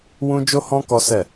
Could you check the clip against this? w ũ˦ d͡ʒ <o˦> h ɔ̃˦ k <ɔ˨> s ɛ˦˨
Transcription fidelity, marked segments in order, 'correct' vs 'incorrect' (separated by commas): correct, incorrect